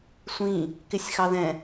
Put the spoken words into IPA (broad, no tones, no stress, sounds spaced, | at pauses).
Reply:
sʷ ĩ | k ɪ sʲ x ɑ ð ɛ̃